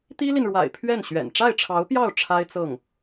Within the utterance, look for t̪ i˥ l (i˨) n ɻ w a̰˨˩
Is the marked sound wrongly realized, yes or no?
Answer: no